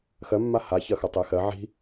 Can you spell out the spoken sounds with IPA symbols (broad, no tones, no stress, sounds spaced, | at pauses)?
x ɜ mː a h a ç ɐ x ɐ tˤ e x ɜ ʕ i̤